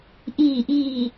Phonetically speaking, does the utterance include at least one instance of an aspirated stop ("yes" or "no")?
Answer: no